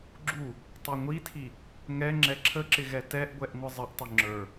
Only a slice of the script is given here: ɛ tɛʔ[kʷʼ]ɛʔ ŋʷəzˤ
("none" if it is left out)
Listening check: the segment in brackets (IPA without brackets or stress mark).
ɡʷ